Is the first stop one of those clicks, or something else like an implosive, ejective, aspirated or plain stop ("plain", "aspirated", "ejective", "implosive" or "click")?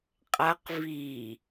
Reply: ejective